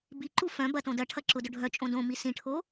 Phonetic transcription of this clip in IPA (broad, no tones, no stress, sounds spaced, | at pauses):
b i ǃ u f œ̃ b ɐ t õ d ɐ ʈʰ ɐ ǁ ʊ d ʊ ɖʱ œ t͡ʃʼ õ d õ m i s ĩ ʈʰ o